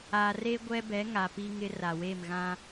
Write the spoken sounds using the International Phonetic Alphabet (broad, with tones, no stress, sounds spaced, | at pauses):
a˨ r e˦ ɡʷ ɛ˦ b ɛ˨˦ ŋ a˨ p i˦ ŋ ɪ˦ r a˨ w e˦˨ m ɣ ã˦